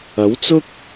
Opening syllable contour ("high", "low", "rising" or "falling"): rising